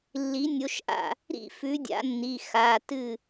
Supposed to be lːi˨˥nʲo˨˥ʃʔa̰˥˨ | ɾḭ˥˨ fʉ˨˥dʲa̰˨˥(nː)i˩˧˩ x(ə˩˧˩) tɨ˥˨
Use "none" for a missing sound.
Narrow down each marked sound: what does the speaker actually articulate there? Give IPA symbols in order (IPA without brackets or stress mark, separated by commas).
nː, a˩˧˩